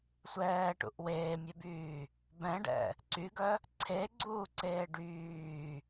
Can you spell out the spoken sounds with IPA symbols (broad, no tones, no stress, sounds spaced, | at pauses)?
sʷ ɛː ʈ ṵ ʔ w eː mʲ ɛ b yː | b ɛ̃ ɖ ɛ̰ | ǀ y ɡ œ | ǀʰ e ɡ͡ǀ uː ǀ eː ɖ yː